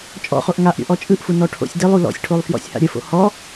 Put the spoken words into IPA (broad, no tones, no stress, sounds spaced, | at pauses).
t͡ʃʼ ɔ̰ χ o ʔ ŋ a ʔ ɾʲ o̰ ʔ ɔ t͡ʃʼ ɯ ʔ f u n ɔ ʈʰ o̰ sʲ d ɘ lˠ u l ɔ̰ sʲ ʈʰ o lˠ f j ɔ̰ sʲ h a̰ ɾʲ ə f o̰ h ɔ